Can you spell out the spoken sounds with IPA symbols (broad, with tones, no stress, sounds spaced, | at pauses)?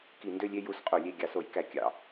k i˧˩˧ n d ø˦˨ lʲ e˦˨ j u˦˨ s qʼ o˧˩˧ lʲ e˦˨ ɡʲ ɑ˧˩˧ s o˧˩˧ j k æ˧˩˧ kʲ ɑ̰˧˩˧